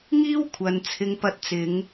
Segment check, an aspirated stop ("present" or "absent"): present